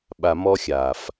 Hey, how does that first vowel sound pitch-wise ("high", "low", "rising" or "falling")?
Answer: low